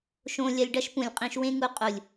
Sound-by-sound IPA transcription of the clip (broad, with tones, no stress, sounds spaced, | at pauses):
ʃ õ˧ lʲ ɐ˧ lʲ ɖ ɐ˦ ʃ p ũ˨ lʲ qʼ ĩ˧ ʃ w ẽ˦ ŋ u˧ qʼ u˨ lʲ